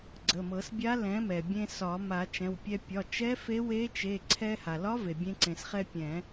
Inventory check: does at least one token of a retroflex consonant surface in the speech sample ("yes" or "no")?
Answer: no